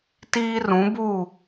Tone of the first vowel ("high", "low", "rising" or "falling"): high